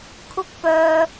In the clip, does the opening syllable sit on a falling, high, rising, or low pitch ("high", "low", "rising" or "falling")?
high